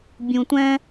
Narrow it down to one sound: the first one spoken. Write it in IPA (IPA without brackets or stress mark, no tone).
bʲ